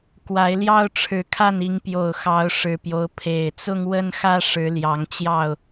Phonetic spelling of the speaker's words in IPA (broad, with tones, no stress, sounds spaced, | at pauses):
k w a˨˦ ɪ̯ l j ɑ˦ ʊ̯ ʈ͡ʂʰ ɻ̩˨˦ kʰ a˥˨ n i˨˦ ŋ p j o˨˩ ʊ̯ x ɑ˨˦ ʊ̯ ʂ ɻ̩˨˩ p j o˦ ʊ̯ pʰ e˨˩ ɪ̯ t͡s ʊ˦ ŋ w ə˦ n x ä˦ ʂ ɻ̩˨˦ l j ɑ˨˦ ŋ t͡ɕ j ɑ˥˨ ʊ̯